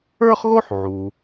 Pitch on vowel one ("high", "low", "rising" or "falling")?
high